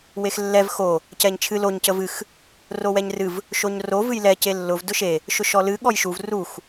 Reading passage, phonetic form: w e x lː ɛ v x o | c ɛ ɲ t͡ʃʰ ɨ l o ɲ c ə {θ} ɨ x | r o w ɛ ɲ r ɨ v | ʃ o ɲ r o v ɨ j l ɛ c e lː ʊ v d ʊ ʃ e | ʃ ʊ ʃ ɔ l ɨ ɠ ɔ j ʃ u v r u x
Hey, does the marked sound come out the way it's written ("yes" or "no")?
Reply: no